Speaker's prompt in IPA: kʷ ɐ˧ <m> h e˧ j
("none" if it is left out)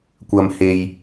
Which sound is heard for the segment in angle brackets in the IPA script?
m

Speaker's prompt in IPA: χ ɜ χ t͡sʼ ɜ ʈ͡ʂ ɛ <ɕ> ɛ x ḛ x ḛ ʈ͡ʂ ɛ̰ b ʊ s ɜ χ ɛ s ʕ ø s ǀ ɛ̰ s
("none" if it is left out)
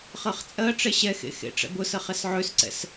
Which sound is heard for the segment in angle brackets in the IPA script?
ɕ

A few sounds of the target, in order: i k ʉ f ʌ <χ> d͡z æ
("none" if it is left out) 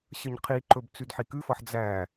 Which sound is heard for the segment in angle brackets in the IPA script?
ħ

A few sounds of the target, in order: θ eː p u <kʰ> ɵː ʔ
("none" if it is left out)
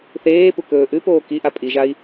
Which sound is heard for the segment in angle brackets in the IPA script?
k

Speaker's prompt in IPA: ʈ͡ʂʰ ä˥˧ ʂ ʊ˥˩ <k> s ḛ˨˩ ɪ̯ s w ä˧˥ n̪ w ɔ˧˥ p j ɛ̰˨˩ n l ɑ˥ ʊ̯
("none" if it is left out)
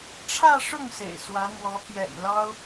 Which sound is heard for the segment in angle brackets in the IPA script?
ŋ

